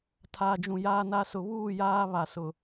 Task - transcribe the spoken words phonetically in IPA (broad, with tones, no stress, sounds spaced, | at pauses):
tʰ aː˨ d͡ʒ ũ˨ j aː˦ n a˦ s ʊ˨ β uː˦˨ j aː˦ β a˨ s ʊ˨